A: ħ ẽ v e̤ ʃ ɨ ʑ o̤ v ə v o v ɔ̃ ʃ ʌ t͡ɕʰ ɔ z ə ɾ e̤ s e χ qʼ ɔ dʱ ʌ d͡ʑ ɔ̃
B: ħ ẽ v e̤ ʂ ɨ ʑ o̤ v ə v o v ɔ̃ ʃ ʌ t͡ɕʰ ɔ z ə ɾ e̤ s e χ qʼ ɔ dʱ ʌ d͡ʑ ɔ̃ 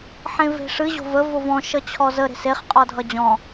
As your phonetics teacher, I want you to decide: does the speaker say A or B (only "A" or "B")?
B